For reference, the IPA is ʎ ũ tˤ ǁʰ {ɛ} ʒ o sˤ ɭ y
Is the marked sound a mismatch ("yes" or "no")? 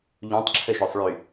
yes